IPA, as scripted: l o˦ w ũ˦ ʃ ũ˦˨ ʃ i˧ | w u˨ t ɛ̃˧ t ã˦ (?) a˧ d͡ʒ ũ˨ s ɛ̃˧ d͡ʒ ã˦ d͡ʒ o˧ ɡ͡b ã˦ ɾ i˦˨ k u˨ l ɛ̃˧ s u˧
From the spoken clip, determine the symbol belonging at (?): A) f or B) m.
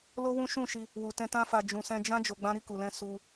A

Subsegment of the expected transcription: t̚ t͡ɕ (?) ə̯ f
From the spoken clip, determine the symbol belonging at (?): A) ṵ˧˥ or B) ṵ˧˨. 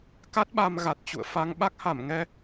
B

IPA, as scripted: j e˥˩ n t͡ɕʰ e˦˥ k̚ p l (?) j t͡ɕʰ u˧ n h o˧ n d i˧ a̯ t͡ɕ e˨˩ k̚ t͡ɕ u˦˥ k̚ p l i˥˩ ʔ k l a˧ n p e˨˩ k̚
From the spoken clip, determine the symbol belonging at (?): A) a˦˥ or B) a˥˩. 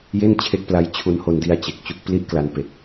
A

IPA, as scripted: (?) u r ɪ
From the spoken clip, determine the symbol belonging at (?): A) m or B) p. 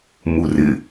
A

